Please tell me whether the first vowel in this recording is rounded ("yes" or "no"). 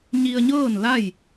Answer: no